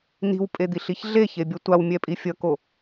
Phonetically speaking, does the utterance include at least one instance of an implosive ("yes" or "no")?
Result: no